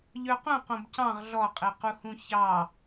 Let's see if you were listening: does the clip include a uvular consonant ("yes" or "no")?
yes